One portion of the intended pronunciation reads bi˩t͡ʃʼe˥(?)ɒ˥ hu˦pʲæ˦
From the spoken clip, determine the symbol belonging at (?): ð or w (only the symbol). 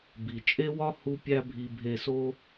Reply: w